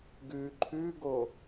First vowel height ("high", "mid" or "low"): high